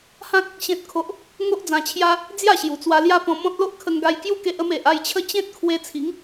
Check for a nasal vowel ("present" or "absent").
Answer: present